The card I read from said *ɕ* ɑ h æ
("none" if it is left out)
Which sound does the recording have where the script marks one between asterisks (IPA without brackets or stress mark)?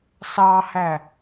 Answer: s